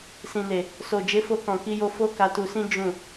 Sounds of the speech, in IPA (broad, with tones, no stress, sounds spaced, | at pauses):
s ĩ˨ n e˨ | s o˨ d͡ʒ e˨˦ f o˧ k ɔ̃˨ k i˧ j o˧ f o˦ k a˧ t u˧ s ĩ˦ d͡ʒ ũ˦˨